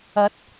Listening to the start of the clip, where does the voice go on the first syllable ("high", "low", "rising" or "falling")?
rising